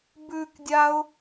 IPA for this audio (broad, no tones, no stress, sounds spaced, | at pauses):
b ʉ k dʲ a ʊ̯